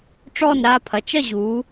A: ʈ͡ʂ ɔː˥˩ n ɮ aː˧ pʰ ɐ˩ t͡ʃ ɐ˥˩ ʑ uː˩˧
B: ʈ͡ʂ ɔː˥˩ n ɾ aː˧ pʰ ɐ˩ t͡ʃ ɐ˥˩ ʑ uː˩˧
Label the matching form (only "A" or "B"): B